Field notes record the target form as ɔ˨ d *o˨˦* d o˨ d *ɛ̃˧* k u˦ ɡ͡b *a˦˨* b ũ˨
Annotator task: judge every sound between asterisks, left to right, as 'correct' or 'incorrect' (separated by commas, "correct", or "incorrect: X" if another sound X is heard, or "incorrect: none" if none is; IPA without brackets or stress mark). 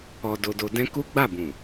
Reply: incorrect: o˨, correct, correct